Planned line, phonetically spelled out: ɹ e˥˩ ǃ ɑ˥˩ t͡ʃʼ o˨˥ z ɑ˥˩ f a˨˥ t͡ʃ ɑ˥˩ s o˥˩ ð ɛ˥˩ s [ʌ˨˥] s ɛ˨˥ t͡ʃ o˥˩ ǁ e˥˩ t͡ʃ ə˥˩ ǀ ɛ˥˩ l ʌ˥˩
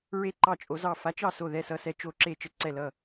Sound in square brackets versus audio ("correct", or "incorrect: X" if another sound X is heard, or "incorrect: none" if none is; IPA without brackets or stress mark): correct